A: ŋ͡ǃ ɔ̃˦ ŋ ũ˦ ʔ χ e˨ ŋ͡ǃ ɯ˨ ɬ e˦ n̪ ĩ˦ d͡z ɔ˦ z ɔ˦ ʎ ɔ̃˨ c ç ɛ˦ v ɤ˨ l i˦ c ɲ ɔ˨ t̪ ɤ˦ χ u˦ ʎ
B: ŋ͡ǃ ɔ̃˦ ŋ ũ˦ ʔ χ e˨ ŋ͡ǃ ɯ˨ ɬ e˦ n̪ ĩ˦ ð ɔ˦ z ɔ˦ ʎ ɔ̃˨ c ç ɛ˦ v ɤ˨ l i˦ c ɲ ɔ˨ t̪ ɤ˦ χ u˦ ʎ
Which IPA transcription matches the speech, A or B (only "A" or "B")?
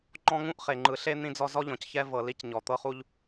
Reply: A